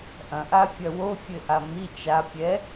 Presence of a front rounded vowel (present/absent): absent